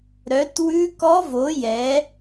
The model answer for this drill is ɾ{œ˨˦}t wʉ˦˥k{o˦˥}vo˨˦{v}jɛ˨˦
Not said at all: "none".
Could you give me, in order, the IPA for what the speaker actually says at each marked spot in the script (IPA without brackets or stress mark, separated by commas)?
œ˨˦, ɔ˦˥, none